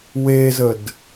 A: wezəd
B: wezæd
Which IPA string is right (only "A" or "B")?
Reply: A